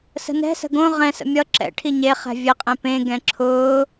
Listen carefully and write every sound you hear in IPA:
sə̤nɛ̤sə̤ ɡõ ʁɛ̃sə̰ mʲʌ ǁɛ̰ ʈʰiɲeχɛ̤ vʲɘqʼẽ pẽɡɛ̃ ǁʰʊː

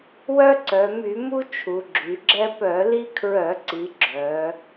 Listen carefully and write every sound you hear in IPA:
wœ˦ǀœ˩˧ my˧˩˧mu˦ t͡ʃʰu˩˧ɡ͡ǁy˩˧ɡ͡ǁɛ˦ pœ˧˩˧li˦kʰɹœ˧˩˧ǀi˩˧ ɡ͡ǁœ˩˧

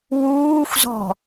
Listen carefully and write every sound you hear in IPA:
wuːxʷzɔ̤

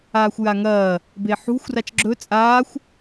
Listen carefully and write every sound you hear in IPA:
aːxʷjaŋɐː | beħṳxʷ rat͡ʃɡ͡ǁɵ t͡sʼaːxʷ

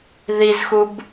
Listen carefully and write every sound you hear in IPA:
ðizxub

